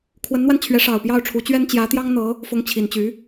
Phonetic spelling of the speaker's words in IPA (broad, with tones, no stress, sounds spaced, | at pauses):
kʰ w ə˧˥ n n̪ w a˧ n t͡ɕʰ ɥ ɛ˧˥ ʂ ɑ˨˩ ʊ̯ p j ɑ˥˩ ʊ̯ ʈ͡ʂʰ u˧˥ t͡ɕ ɥ ɛ˥ n t͡ɕ j ä˧˥ t̪ j ɑ˥ ŋ n̪ ɤ˧˥ | f ʊ˧˥ ŋ t͡ɕʰ i˨˩ n t͡ɕ y˧˥